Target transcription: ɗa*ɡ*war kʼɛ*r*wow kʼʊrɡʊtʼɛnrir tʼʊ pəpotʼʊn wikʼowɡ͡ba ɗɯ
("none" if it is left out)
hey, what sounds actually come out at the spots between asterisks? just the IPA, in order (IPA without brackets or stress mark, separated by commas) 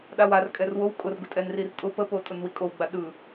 none, r